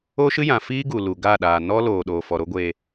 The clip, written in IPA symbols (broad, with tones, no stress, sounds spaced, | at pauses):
o˦ ʃ ɨ˦ j ã˨ f iː˦ ɡ u˨ l u˨ ɡ a˦˨ ɗ aː˨ n ɔ˦ l oː˨ ɗ oː˨ f ɔ˨ ɾ o˦ ɡʷ e˧